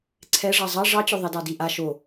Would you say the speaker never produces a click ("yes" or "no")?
no